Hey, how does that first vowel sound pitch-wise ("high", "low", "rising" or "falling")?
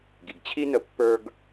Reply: low